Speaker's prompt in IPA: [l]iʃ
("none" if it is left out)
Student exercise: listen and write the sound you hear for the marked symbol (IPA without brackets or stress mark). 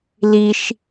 l